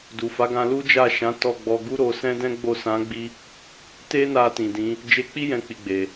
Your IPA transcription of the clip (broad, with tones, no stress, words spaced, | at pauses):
du˨fa˨˦ɡã˧ lu˦d͡ʒa˦˨ʃã˨˦ tɔ˦˨ɡ͡bɔ˧ ɡu˦ɾo˧ sɛ̃˦dɛ̃˦ɡ͡bo˦˨ sã˨˦ɡ͡bi˧ | te˦na˧ tĩ˨dĩ˨˦ | d͡ʒe˧k͡pi˦ jɛ̃˧k͡pi˨ɡ͡be˨